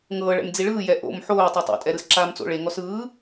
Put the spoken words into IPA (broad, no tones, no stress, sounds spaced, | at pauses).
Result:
ŋ ɤː ɭ ɛ̰ m d͡z i ɭ ɯː j ɛ ʔ o̰ m ħ oː tˤ o tˤ o̰ tʼ ɛ ɾ ɯ s ǁ aː m t͡s o̰ ɭ e ŋ ɔ s ɯː